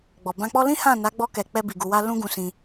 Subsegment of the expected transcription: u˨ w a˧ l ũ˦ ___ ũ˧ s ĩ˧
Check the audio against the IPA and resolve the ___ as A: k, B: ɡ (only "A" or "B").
B